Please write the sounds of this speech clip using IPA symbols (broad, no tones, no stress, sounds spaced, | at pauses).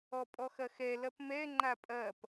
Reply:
ɔ pʼ ɔ x ɐ x ɛ l ɐ p m ɛ ŋ͡ǃ a pʼ ɐ p